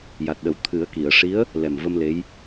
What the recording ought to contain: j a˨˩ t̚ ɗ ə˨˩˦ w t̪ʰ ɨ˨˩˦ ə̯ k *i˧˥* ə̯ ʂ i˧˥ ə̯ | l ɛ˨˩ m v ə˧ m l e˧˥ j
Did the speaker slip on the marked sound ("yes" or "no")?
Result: yes